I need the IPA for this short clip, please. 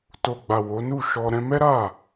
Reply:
t o˨ ɡ͡b a˨ w o˨˦ n u˦˨ ʃ ɔ˧ ɾ ɛ̃˦ m ɛ˦ ɾ a˦˨

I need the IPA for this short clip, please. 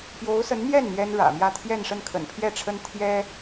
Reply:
p j o˧˥ ʊ̯ s ə˧˥ n n̪ j ɛ˥˩ n n̪ j ɛ˥ n ɻ ä̰˨˩ m j ä˥˧ t̪ʰ j ɛ˥˧ n ʂ ə˥˩ n kʰ ə̰˨˩ n pʰ j ɛ˥˩ ʈ͡ʂʰ ə˥ n t̪ʰ j ɛ˥

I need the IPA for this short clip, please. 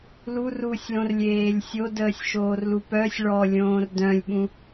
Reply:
l u r u sʲ l õ r lʲ eː lʲ sʲ o d əː sʲ ʃ oː r l u p œ sʲ ɭ ɔ lʲ õː r d œ̃ lʲ ɓ ũ

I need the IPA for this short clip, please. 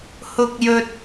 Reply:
h ʊ˧ k̚ j ɵ˧ t̚

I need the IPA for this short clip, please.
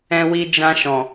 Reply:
ɛ̃˧ w i˧ d͡ʒ ã˧ ʃ ɔ̃˨

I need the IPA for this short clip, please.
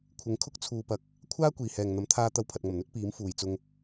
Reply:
kʷʰ ɪ˨˧ ŋ kʰ ʊ˥ k̚ t͡sʰ uː˨ p ɐ˨˥ k̚ | kʷʰ aː˥ kʷ iː˨ h ɛː˨ ŋ n̪ ɐ˨˥ m t̪ʰ aː˧ t̪ ɐ˧ w pʰ ɐ˨ t̚ ŋ ɐ˨˩ m n̪ ɵ˥ t̚ p iː˨˥ m f uː˨ j t͡s ʊ˧ ŋ

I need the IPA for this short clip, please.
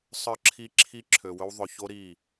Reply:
sˤ ə˞˦ ǁʰ i˦ ǁʰ i˦ ǁʰ ø˨ w ɵ˦ w ðˤ ɵ˨ ç o˦ ɾ i˦˨

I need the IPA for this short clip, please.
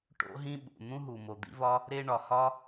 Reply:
ʈ o̰˥ ɦ ĩ˥ ɓ ṵ˩ n̪ ũ˥ ɦ u˩ m o˩ d̪ ḭ˥ v ɒ˥ | ɾ e˥ ɳ ɒ˩ h ɒ˥

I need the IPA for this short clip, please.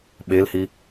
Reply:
ɓ e l h i

